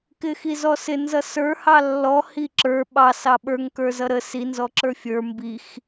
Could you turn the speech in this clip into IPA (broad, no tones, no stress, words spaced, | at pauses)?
kɪxizɔsɪ nzʌsə˞ hɑlːɔ hiǁə˞ ɓɑ sɑɓə˞ŋ kə˞zʌɾə si nzɔǁə˞fʲə˞ mbix